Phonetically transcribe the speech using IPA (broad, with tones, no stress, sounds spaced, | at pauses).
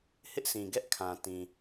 h ɪ˦ ʔ sʰ ĩ˨ ɡ ɛ˦ ʔ kʰ ã˨ t ĩ˨